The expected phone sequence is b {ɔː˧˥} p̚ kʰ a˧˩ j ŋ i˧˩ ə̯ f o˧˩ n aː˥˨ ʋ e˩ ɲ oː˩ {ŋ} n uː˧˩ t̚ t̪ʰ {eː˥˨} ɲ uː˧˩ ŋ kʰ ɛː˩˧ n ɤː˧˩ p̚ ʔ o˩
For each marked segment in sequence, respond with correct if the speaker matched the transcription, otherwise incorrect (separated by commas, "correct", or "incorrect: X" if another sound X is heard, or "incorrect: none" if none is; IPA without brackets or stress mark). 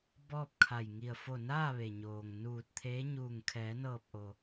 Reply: incorrect: ɔː˥˨, correct, incorrect: eː˧˥